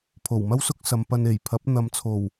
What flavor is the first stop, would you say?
aspirated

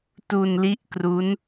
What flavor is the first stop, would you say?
plain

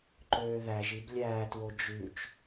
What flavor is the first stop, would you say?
click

